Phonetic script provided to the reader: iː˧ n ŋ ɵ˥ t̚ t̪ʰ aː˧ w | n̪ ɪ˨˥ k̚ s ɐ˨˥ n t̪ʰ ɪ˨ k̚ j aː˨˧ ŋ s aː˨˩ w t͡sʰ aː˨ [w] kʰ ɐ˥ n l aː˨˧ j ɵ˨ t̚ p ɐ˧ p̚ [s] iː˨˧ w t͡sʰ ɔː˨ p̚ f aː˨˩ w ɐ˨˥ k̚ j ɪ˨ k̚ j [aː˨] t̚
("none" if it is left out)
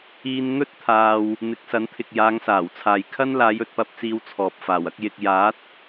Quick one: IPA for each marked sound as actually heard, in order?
j, t͡s, aː˨˥

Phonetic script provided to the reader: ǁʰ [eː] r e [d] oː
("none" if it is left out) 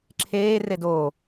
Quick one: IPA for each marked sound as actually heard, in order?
eː, d

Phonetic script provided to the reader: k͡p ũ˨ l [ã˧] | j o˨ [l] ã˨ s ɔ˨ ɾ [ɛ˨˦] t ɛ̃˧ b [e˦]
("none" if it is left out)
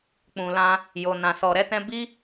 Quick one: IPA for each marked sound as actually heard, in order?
ã˧, n, ɛ˨˦, i˦

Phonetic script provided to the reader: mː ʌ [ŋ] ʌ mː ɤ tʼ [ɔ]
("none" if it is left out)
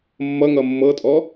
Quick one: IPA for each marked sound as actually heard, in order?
ŋ, ɔ

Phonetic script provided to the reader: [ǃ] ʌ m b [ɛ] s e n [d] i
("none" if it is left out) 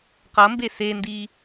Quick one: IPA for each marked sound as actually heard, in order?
q, e, d

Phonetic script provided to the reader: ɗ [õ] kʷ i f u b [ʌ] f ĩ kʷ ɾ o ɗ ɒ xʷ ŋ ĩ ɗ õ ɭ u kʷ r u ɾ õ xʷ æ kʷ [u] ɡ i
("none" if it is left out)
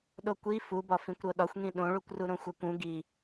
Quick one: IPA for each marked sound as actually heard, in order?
o, ɒ, ũ

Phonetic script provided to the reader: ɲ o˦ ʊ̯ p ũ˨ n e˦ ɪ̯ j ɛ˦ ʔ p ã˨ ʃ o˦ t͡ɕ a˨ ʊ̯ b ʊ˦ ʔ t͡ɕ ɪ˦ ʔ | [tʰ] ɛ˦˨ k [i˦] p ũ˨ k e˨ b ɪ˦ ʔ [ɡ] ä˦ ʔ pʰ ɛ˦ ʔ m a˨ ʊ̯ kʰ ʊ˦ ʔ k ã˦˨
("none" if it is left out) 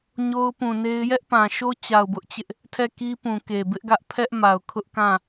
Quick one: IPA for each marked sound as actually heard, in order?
tʰ, i˦, ɡ

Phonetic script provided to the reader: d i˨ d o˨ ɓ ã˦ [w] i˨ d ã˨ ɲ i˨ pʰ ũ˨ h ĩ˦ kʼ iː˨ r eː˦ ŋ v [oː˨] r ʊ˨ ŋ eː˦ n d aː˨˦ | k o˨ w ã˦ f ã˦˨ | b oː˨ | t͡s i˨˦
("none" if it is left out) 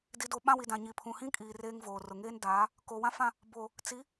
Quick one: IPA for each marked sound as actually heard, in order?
w, oː˨

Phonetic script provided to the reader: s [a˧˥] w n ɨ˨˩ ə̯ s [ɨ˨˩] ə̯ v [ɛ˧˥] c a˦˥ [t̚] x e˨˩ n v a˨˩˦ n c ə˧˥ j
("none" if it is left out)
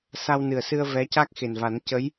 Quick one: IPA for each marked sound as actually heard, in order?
a˧, ɨ˧, ɛ˧˥, k̚

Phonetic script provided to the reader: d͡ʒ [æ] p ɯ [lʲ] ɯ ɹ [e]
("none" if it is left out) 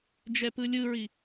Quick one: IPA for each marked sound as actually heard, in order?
ɛ, lʲ, i

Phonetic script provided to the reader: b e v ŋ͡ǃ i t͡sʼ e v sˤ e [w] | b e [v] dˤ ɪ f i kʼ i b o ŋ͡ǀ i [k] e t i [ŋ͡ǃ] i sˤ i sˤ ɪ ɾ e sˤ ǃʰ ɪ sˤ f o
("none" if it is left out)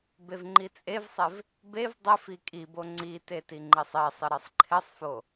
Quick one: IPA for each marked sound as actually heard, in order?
v, v, t, ŋ͡ǃ

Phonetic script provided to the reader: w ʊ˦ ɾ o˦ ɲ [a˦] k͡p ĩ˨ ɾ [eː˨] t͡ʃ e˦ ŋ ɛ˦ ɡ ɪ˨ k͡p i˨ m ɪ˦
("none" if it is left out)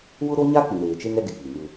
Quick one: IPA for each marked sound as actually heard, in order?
a˦, eː˨

